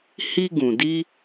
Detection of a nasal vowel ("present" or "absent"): present